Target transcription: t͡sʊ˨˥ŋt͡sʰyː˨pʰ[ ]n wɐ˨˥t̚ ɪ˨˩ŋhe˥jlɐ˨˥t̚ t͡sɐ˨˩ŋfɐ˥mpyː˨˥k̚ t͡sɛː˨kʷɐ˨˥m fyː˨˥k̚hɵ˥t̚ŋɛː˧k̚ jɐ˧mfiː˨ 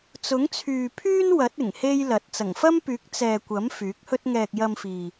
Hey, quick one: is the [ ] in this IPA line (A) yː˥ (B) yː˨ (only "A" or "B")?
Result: A